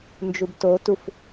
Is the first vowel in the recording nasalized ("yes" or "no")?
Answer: no